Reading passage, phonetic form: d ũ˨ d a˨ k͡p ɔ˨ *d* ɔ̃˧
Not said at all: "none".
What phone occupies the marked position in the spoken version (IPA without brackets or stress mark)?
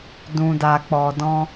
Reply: d